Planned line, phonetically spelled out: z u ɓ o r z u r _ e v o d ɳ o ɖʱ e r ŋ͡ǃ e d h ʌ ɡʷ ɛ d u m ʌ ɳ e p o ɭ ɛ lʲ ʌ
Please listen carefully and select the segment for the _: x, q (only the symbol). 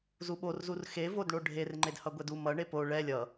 x